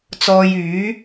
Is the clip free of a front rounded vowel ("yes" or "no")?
no